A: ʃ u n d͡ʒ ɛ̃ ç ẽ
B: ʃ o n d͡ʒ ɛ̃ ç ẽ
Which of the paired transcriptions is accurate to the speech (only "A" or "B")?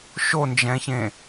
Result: B